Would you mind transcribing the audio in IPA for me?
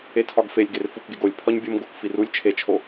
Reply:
e tʰ ɒ ɡ f e lʲ ɡ e r f u k ɡ e ɡ o lʲ pʰ ɒ ɲ bʲ o m ɡ o k f i r u lʲ t͡ʃʰ e t͡ʃʰ o

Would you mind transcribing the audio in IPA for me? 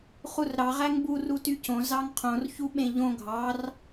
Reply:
χ u r ɾ ɑ ʁ æ ŋ b u r u t y c õ z ɑ ŋ qʰ õ r ç u ɓ ẽ ʎ õ ɡʱ ɑ r

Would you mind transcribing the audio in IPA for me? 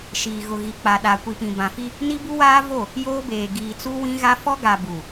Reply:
ʃ iː˨ ɣ ʊ˨ ɣ i˨ k͡p a˨ ɗ a˨ kʷ i˨ p ĩ˨ b ã˨ f i˦ | n i˦ b u˦ w aː˦ v o˦˨ | j oː˦ b eː˨ ɡ iː˨ t͡s u˦ w ĩ˦ ɣ a˦ f ɔ˦ ɡ a˨ b u˨

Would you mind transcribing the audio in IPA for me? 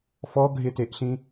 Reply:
f ɔ ɡʱ ɪ t e ʔ ɬ ĩ

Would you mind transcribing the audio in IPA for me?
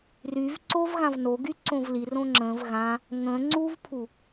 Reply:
r y v ǀ o v ɣ ã v n o ɡ y ǀ õ v l i r õ ŋ͡ǁ ə̃ v ɣ ã | ŋ ə̃ ŋ͡ǀ u v pʰ u

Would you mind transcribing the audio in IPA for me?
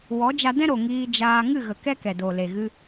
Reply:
w ɔ˨˦ d͡ʒ a˧ d ɛ̃˦ ɾ o˨ ŋ iː˧ d͡ʒ aː˧ ŋ ɨ˦˨ ɣ ə˨ k ɛ˦ k ɛ˨ d o˨ l e˨ ɣ ɨ˧

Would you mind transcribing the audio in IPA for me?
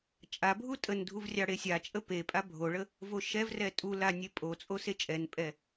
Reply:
t͡ʃʼ a bʱ u tʼ ə n dʱ u v rʲ ɑ ɽ e sʲ a t͡ʃʼ ə p e pʼ a bʱ o ɭ ə | v o ʃ ɛ v r ɛ tʼ u l a nʲ e pʼ o t͡sʼ o s e t͡ʃʼ ɛ n pʼ ɛ

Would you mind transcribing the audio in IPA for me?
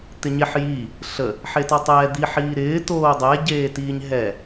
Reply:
t̪ ɪ ɲ e ħ j i | ɬ ə | ħ e t ɔ tˤ ɛː d̪ i ħ iː ɾ ɪː t oː dˤ ɛ ɟ eː t iː ɲ ɦ ɛ

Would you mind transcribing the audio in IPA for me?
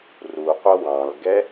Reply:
r u qʷ ʌ w ɑ̃ l ɡ ɛ

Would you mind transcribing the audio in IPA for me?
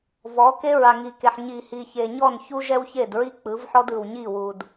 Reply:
v ɔ˨˦ k e˦ ɹ a˨ ŋ i˨ k e˨ ħ ɲ i˨ h i˨ ç e˨ ɲ ɔ˦˨ n ç u˦ ʒ ɛ˦ w ç e˦˨ d ɹ i˦ k͡p ɯ˨˦ v ħ ɔ˦ d ɯ˨ w ɲ i˦˨ w u˨ d

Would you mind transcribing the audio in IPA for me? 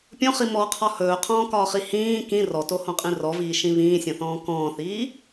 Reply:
pʲ õ χ i m ɔ qʰ ɒ h ɵː qʰ ɔ̃ː k ɒː χ i h ĩː k ĩ r ɔ t o h õ qʼ ĩ r ɔ v iː ʃ ĩ β ĩː sʲ õ θ ɔ̃ː k ɔ̃ː θ iː

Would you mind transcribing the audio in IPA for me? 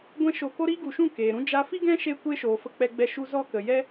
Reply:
ɡʷ ɛ̃˦ ʃ o˧ k o˦ ɾ iː˦ ɡ u˨ ʃ ũ˦˨ k eː˨ ɾ ũ˦ d͡ʒ a˧ f i˦ ɡ ɛ̃˦ ʃ e˦ kʷ e˦ ʃ oː˨ f ə˧ k͡p ɛ˧ ɡ͡b ɛ˧ ʃ u˦ z ɔ˦ k ə˨ j ɛ˧

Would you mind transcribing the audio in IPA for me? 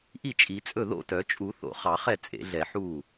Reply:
ʔ i˥˩ t͡ʃʼ i˨˩˦ t͡sʼ ɵ˥˩ ð o̰˥˩ t œ˨˩˦ t͡ʃʼ u˨˩˦ θ o̰˨˩˦ χ ɑ˨˩˦ χ ɛ˥˩ t͡sʼ ḛ˨˩˦ ɮ ɛ˨˩˦ ħ uː˥˩

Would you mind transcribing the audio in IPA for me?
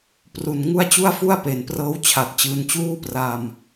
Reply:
p r u˨˩ n ŋ u˥˩ a̯ t͡ɕ u˥˩ a̯ f u˥˩ a̯ p e˨˩ n p r ɤː˦˥ w t͡ɕʰ a˨˩ t̚ t͡ɕ ɯː˧ n t͡ɕ uː˥˩ p r a˧ m

